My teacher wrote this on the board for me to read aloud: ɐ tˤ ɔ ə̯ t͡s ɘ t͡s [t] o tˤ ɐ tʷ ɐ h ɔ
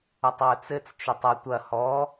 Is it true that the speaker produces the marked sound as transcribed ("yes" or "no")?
no